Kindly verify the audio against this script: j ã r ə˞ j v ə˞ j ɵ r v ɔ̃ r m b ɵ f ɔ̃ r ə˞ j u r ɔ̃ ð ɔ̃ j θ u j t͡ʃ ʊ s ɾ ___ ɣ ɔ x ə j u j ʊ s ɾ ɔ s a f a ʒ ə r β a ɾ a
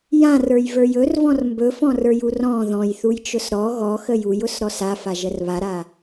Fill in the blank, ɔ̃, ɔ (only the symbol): ɔ